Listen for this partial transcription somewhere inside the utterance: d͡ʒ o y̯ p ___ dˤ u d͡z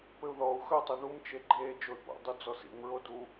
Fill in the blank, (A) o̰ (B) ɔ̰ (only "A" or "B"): A